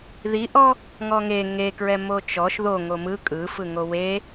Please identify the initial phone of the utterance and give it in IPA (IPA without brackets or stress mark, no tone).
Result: ð